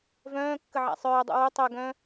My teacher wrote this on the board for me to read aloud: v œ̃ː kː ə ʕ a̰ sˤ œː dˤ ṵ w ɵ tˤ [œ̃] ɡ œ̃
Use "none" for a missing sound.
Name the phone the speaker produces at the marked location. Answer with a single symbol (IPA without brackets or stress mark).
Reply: œ